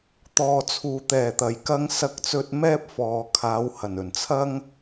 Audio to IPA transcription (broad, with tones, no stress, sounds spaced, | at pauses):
t̪ ɔː˨ t͡sʰ uː˨ t̪ ɛː˨˩ t̪ ɐ˨˩ j k ɐ˧ ŋ s ɐ˧ k̚ t͡s ɵ˧ t̚ m ɛː˥ p̚ f ɔː˨ kʰ aː˨˧ w h ɐ˨˩ n ɵ˨˩ n t͡sʰ ɐ˥ ŋ